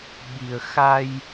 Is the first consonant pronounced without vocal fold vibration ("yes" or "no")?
no